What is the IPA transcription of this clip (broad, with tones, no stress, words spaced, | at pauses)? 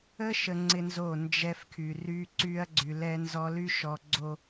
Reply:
ə˦ʃə˨ ŋ͡ǀɪ˦nzo˦˨nd͡ʒɛ˦fkʰy˨ ry˦ ǀy˦ɐ̯ɡ͡ǀy˨lɛ˦nzɔ˦ ly˦ʃɔ˨ɡ͡ǀo˨